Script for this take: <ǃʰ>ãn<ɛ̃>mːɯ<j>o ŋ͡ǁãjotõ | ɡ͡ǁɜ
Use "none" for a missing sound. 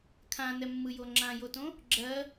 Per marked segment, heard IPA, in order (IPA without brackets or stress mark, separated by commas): kʰ, ɛ, j